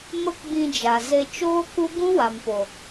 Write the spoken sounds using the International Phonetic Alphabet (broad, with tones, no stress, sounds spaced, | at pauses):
m ə˦ k ɡ͡b ĩ˧ d͡ʒ a˨ z e˧ t͡ʃ oː˦ k u˦ ɡ ũ˦ w a˨ m p o˨